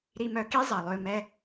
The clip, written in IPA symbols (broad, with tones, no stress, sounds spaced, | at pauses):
ɾ i˧ m œ˧ k i˦ zˤ ɐ˨ lˠ ʏː˧ m ɛ˦